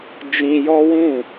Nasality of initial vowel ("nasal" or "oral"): nasal